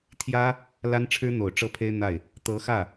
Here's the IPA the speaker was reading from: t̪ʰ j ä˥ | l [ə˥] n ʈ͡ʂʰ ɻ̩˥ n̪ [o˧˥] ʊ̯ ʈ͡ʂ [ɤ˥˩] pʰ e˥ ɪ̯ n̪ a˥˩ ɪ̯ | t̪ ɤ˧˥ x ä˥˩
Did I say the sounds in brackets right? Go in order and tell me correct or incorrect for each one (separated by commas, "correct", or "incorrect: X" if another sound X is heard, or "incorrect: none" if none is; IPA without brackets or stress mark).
incorrect: a˥, incorrect: o˨˩, correct